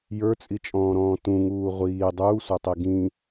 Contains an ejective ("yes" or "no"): yes